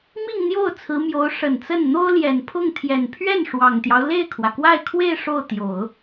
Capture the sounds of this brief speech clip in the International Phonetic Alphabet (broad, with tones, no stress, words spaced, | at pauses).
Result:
mi˥˧ŋn̪jo˥˩ʊ̯ t͡sʰɹ̩˧˥mjo˧˥ʊ̯ ʂə˨˩nt͡sə˥˩n n̪o˥ʊ̯ljɛ˨˩npʰʊ˥˩ŋt̪ʰjɛ˨˩n pʰɥɛ˥˩n ʂwɑ˨˩ŋt̪jɑ˦ʊ̯ le˥˩ɪ̯kʰwä˩kwa˥˧ɪ̯kʰwe˥˧ɪ̯ ʂo˥˩ʊ̯t̪jo˨˩˦ʊ̯